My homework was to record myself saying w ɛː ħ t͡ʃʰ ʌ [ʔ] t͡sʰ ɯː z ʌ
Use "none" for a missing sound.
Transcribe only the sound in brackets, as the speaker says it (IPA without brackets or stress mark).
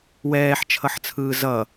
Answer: ħ